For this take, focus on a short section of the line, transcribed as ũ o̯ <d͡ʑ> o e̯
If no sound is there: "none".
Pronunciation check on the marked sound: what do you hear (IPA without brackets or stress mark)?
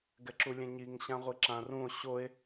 ɕ